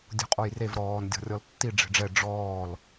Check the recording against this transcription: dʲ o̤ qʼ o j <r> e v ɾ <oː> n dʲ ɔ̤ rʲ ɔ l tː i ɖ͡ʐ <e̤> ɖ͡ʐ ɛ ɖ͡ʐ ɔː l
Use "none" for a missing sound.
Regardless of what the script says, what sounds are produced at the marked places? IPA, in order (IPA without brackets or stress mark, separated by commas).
r, ɔː, e̤